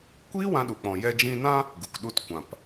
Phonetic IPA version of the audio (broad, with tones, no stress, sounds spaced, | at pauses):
kʷ iː˦ w ã˧ ɗ u˨ k͡p ɔ̃˨ j ɛ˧ d͡ʒ ĩ˧ n ã˦ | ɡ u˨ k ɗ u˧ t kʷ ã˨ p